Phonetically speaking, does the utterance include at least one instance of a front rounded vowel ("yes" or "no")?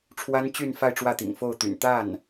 yes